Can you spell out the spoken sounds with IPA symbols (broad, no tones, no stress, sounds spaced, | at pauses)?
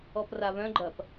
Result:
ɔ p r a β œ̃ ɡ͡ǃ ɐ p